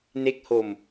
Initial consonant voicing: voiced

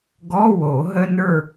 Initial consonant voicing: voiced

